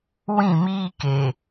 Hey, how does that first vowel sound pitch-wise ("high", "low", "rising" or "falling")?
falling